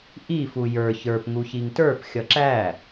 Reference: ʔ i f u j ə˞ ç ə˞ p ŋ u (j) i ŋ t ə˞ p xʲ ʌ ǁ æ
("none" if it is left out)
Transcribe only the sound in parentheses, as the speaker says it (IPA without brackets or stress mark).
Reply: ç